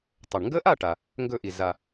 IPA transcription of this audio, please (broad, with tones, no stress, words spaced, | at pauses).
tˤɵ˩ɳŋɡə˦˥ʔa˥˨ʈa˩ | ŋɡɵ˧˩ʔi˩za˩